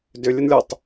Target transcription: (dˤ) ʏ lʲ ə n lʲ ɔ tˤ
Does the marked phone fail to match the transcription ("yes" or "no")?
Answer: yes